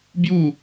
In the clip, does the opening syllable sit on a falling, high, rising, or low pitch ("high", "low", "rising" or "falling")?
falling